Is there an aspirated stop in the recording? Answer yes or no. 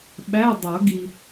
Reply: no